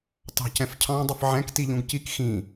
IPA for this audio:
tɑ̤cɛ̃fcʰɑ̃ dˤʊfʕɛ̃k tiʎũɡcik xĩ

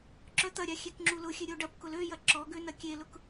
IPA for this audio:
ǁœt̪ɐɾʲa xʲekŋ͡ǁulʊxʲø ɾʲoɖɐpkʊl øjɐ ǁɔɡø nɐkʲelʊk

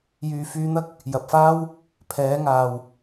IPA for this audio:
jyː˨fyː˧n̪ɐ˥k̚ | jɐ˨p̚faː˥w | pʰɛː˨˧ŋaː˨w

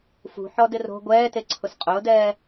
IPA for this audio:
fṳħɔdɪ ro̤ ɡʷɛːteǀʰʊs qʼʊːdɛː

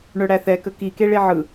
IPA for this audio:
ɳœɽæθɛkə kike ɭeʕɯ

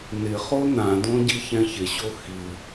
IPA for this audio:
nɪχo nãdõ ɟiçɛ̃çɪɕo xi

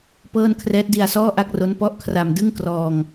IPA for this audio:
pɤː˥˩n kʰrɛː˦˥t̚di˧a̯sɔː˥˩ʔa˥˩k̚ ro˦˥npɔ˦˥ʔkʰra˧m dɯ˥˩ŋ krɔː˧ŋ

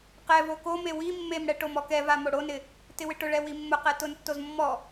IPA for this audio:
qɛvo kome wi mːemɽɛ ʈomɔkɛva moɽonɪ | tɪwɪʈʊɭɛ wimːʊqɛ tʊntːoz mːɔ

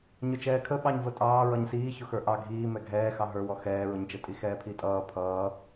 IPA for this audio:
ɲʊt͡ʃɛːkʰə ɓɑɲvətʼɑː ɹʌɲsiː çʊxə˞ʔɑ ɡʱiː mɛɡʱɛːxɑ ɦə˞wɔ xɛːɹʊɲt͡ʃə tʼixɛːpʰitʼʌː pʰʌː

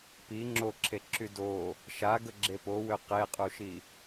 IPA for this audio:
pi ŋ͡ǁoǁʰeǁy do | ʃaɡəɡ͡ǁe powø qeqʼuʃi

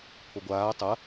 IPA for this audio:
pʰoɡʷaː tˤɐ

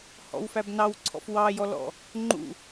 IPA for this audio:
hɔ̰wfæb nɑwǀʰɔ̰f wɑjɔlɔ̰ | ŋ͡ǃṵ

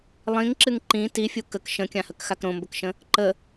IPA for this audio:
lˠĩŋǁɨŋ ǃĩ tifʲu kək ʃə̃kʲãhəkxak ɾõmbəkʃə̃ | ǃə

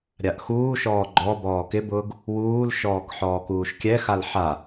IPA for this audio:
ɾʲaʔxuːʃɔː ɡ͡ǃɔ bɔːkɪbʊːɡ | wuːlʃɔːk ħɔːkuːʃkʲɛxal ħa

